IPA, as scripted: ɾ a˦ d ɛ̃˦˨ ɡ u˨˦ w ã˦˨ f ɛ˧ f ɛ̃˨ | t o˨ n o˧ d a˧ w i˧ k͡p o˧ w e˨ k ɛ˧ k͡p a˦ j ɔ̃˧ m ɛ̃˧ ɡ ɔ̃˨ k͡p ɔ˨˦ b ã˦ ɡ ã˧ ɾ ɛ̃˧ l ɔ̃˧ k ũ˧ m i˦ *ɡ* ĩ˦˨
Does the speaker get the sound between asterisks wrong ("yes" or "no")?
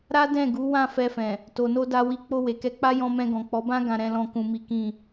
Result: yes